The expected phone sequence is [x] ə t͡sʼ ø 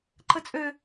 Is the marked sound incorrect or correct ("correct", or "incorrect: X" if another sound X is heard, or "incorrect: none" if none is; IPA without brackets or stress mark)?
incorrect: ǃ